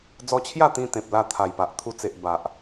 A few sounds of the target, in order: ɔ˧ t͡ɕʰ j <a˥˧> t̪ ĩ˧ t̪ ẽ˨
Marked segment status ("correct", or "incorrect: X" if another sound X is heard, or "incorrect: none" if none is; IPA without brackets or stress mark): correct